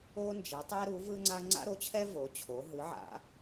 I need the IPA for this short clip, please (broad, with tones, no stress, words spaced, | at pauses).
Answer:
o˥nd͡ʒɛ˨˥ tˤɛ˥ɾu˨˥vɯ˥ŋ͡ǀa˥ ŋ͡ǀa̰˥ɾo˨˥t͡ɕʰɛ˥ vo˨˥t͡ɕʰo˨˥ ɦɯ˨˥ʕa̰˨˥